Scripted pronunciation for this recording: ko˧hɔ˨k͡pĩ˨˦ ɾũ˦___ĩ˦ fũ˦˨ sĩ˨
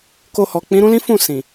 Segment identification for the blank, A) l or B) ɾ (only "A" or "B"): A